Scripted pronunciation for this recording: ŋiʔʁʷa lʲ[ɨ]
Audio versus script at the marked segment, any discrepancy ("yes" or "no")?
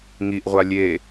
yes